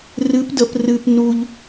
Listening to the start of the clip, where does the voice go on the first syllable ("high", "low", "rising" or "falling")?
rising